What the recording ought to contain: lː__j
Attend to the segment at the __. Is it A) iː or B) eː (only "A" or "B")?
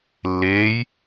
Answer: B